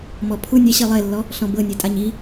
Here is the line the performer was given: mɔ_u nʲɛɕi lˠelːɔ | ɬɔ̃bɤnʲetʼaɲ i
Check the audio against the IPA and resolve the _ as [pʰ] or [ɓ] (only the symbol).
pʰ